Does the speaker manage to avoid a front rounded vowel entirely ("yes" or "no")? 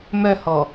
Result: no